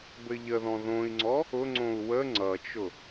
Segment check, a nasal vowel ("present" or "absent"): present